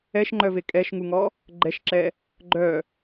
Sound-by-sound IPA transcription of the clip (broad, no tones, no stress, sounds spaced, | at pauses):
ɛ ʃ ŋ͡ǃ œ v e kʼ ɛ ʃ ŋ u ŋ ɔ | ɡ͡ǃ ɛ ʃ ǁ ɛ | ɡ͡ǃ œ